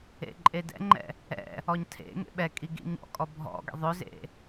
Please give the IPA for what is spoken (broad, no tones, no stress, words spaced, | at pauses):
ḛǃʼedɛ̰ŋ͡ǃɛ̰ | ɛ̰ | ɔɲtʰḛŋḛ ɓɛ kʼiɡḭɲɔ̰kʼɔ bʱɔ̰ɡɛ̰ ðˤɵzḛ